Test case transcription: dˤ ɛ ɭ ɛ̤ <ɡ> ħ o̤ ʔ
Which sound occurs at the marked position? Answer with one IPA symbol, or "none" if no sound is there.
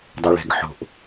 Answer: ɡ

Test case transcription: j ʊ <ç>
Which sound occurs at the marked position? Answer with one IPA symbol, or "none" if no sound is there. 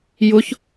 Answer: ç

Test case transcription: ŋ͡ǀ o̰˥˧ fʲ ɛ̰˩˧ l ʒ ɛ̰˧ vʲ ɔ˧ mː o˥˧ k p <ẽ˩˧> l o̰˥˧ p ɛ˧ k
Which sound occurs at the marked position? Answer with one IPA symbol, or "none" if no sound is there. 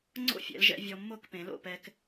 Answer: ẽ˩˧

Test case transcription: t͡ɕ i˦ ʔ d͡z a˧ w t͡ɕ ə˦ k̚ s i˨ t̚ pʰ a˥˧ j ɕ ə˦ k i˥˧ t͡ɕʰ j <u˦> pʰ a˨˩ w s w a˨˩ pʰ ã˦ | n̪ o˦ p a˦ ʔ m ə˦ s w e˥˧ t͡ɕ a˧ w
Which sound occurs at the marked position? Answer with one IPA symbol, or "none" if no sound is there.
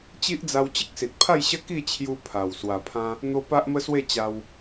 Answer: u˧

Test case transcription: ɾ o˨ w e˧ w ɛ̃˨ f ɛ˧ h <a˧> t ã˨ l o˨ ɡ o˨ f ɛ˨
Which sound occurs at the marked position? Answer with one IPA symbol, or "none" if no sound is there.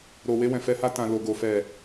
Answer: a˧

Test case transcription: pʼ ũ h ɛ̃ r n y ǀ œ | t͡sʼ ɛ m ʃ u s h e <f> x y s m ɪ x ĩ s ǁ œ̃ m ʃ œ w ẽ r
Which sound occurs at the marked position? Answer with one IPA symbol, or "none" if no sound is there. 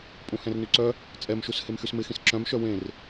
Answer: m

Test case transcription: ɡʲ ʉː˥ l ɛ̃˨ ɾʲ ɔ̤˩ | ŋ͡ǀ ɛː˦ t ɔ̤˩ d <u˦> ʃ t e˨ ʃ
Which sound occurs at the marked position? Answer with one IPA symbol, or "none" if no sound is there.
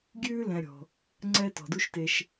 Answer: u˦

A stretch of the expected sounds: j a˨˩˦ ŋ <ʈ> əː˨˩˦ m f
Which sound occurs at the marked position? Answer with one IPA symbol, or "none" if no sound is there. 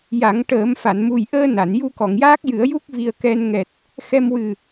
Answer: ʈ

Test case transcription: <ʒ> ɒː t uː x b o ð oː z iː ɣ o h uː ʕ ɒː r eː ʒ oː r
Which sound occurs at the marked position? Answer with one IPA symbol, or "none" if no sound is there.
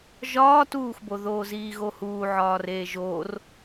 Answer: ʒ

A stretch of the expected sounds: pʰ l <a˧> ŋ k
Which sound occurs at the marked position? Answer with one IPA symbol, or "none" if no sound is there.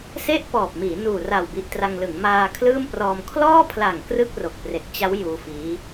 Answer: a˨˩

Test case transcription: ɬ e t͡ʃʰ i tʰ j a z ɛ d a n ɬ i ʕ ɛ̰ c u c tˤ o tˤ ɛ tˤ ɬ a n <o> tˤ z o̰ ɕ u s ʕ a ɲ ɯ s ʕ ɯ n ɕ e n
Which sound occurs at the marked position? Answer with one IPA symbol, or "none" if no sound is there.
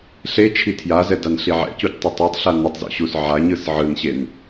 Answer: o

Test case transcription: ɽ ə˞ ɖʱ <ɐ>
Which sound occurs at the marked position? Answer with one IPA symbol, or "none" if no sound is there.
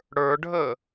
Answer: ə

